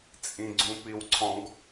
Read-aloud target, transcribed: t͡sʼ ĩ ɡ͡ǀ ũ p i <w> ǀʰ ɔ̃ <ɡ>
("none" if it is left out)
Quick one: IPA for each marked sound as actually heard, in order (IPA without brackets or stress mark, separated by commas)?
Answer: w, ɡ